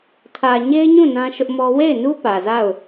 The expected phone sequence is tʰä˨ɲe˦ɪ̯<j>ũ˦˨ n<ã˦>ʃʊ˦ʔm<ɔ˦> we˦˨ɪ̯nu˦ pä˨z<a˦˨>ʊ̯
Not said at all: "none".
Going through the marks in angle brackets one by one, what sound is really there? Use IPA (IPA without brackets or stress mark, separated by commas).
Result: ɲ, ã˦, ɔ˦, a˦˨